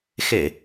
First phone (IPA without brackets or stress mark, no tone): x